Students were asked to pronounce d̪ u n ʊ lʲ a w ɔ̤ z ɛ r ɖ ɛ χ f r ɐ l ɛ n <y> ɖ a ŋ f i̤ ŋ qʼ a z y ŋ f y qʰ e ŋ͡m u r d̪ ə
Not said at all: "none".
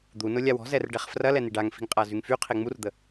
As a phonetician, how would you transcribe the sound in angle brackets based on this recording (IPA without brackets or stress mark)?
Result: i